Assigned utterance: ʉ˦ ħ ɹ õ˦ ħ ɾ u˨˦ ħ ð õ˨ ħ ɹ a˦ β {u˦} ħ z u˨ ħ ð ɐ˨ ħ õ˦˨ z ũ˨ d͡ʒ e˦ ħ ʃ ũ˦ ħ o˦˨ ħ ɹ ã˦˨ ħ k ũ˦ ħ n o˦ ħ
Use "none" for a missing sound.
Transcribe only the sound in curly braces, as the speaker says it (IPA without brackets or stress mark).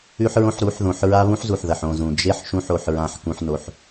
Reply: ũ˦